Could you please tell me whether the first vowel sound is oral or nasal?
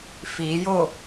oral